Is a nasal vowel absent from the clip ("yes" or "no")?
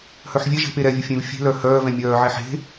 no